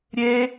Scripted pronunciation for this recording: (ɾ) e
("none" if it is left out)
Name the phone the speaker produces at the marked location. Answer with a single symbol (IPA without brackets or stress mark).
ɾʲ